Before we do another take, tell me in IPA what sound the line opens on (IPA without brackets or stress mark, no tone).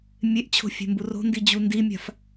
mʲ